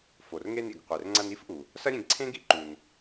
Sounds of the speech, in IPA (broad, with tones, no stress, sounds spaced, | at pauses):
f o˩ r ŋ e˧ n ḭ˩ ɡ qʷ e˩ r ŋ͡ǀ ɐ˧ n i˥ f ʔ u˩ | s ɐ˥ ɾʲ ẽ˧ ɡ ǀʰ ẽ˥ ɡ ḭ˥ ǃ u˩ n